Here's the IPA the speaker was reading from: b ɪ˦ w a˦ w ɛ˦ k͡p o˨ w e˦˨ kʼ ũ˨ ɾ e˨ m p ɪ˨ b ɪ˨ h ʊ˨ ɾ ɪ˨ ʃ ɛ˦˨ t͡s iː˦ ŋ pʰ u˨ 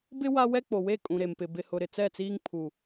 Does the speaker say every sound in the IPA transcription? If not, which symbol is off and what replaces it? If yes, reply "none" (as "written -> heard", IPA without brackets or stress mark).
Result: ʃ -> t͡s